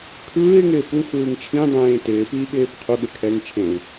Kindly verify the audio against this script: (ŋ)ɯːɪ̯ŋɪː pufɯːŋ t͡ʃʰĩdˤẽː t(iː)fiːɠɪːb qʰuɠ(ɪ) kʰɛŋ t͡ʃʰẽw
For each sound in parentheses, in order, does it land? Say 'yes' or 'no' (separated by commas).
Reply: no, no, yes